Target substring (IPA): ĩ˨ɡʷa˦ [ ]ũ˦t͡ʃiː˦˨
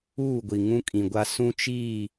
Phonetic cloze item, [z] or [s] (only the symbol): s